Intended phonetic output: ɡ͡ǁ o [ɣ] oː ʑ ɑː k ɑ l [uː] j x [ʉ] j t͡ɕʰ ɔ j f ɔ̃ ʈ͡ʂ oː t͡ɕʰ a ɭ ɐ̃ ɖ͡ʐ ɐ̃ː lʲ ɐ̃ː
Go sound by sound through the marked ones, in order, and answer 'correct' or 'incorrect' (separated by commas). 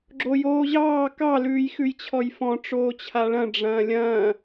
incorrect, incorrect, correct